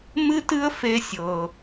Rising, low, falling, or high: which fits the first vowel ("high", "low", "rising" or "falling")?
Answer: high